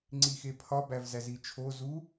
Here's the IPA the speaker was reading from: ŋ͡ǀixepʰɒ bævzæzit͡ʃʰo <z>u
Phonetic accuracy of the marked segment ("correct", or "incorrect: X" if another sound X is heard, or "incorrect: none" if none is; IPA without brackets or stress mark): correct